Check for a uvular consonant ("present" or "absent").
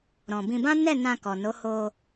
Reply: absent